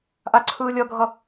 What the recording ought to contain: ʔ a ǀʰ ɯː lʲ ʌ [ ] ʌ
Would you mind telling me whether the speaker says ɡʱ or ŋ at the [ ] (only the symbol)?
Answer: ɡʱ